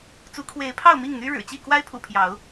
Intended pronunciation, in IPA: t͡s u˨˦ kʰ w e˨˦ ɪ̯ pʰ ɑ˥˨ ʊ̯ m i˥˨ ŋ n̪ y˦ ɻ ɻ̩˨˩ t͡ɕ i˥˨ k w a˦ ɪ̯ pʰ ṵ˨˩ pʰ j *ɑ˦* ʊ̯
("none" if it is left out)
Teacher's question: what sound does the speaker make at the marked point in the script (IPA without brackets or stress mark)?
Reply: ɑ˨˦